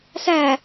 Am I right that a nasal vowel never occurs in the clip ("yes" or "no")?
yes